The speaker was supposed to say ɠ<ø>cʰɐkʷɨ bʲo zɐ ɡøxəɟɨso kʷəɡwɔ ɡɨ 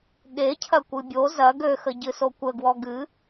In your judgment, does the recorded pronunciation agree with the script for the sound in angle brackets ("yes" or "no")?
no